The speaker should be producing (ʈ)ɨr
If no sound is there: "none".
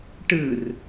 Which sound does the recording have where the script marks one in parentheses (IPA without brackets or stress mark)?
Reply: ʈ